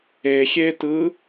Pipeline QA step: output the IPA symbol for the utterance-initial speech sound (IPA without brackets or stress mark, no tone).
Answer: e